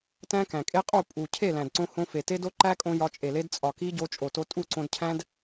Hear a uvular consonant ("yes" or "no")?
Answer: yes